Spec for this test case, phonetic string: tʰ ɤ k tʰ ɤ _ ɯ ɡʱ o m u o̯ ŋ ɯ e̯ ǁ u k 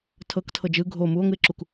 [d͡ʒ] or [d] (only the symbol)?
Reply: d͡ʒ